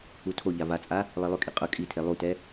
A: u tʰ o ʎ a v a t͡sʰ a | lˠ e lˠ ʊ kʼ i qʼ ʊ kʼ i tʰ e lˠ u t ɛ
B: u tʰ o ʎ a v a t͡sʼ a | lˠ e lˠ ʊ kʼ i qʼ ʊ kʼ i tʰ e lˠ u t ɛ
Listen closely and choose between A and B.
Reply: B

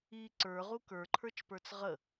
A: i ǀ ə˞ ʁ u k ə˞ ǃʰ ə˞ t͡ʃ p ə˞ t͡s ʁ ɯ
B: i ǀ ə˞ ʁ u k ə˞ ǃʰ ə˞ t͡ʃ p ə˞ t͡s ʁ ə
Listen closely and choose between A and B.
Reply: B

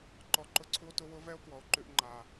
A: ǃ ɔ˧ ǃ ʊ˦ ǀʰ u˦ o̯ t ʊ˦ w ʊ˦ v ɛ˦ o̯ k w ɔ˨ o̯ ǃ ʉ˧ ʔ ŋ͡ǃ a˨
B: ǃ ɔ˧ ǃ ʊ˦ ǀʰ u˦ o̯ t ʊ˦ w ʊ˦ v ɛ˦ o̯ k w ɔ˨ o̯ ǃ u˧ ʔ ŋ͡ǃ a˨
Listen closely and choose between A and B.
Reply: A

